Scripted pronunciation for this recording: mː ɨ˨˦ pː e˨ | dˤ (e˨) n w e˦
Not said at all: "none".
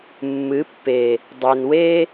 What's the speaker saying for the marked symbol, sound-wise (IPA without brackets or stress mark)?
e˨